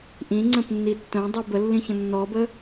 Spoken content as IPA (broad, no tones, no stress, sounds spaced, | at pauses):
ʔ ĩ ŋ͡ǀ ə̃ p nː i tː œ̃ dˤ y b ə lː ĩ ç ə̃ nː ɔ b ə